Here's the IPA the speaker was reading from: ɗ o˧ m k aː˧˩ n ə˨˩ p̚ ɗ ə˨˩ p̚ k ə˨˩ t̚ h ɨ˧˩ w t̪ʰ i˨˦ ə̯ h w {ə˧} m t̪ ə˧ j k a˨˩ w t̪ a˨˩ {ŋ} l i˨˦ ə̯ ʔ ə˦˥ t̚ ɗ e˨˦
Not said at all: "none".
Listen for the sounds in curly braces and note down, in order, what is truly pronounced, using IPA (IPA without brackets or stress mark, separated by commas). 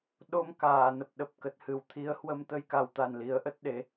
ə˧, n